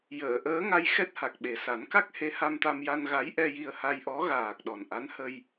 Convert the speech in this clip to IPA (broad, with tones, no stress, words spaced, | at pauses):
jəː˨˩˨ʔəː˧˥ŋa˧j xɛ˦˥t̚ha˨˩k̚ɓe˨˩ sa˨˩˦nka˦˥k̚ he˧˥ha˧mt̪a˧mja˧n ɣa˧˥j ʔɛ˧ji˧ə̯ha˧jʔɔ˧˥ ɣaː˨˩k̚ ɗɔ˨˩nʔa˧˥n hə˧j